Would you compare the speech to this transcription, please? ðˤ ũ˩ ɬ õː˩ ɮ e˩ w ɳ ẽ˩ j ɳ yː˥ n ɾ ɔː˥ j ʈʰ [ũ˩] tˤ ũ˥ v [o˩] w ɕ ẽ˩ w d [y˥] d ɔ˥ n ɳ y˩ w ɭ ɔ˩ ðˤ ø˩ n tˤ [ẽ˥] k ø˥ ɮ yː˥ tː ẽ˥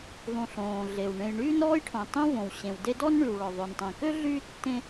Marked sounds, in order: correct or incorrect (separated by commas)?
incorrect, incorrect, incorrect, incorrect